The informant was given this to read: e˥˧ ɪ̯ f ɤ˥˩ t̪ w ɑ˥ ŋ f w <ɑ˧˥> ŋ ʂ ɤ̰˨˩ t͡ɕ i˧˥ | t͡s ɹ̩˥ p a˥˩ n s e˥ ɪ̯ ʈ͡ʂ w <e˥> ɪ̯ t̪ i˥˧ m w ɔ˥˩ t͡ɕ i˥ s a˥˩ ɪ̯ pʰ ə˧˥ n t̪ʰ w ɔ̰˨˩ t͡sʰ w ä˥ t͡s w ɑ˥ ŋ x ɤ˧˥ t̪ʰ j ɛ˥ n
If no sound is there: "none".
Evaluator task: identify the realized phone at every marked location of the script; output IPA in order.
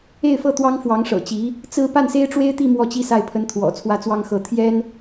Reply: ɑ˧˥, e˥

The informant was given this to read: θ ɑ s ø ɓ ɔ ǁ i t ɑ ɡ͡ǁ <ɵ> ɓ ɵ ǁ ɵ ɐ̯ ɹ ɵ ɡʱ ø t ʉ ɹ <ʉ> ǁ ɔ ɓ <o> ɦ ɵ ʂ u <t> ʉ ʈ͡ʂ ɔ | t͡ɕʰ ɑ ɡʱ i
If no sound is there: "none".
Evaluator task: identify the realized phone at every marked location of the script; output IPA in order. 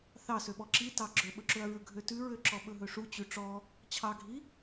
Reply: ɵ, ø, ɵ, t͡ɕ

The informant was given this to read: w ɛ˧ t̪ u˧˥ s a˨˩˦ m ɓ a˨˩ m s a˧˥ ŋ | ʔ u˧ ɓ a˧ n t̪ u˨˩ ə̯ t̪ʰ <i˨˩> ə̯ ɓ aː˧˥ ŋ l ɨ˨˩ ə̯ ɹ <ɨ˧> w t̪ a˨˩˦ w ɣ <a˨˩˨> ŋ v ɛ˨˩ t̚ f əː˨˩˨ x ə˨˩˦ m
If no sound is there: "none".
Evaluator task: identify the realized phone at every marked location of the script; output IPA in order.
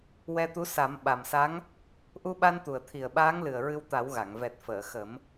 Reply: i˨˩, ɨ˧, a˨˩˨

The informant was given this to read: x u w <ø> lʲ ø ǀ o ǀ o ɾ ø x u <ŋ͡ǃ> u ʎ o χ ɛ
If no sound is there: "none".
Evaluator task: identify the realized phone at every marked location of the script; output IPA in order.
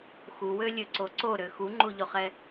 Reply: ø, ŋ͡ǃ

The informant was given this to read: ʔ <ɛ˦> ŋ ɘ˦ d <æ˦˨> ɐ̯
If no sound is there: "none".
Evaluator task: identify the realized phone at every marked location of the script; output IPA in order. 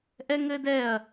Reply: ɛ˦, ɛ˦˨

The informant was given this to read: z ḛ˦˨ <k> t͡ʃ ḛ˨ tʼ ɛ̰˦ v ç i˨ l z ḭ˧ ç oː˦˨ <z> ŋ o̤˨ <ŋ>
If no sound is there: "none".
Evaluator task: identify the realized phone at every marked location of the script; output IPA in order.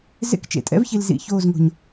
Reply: k, z, ɲ

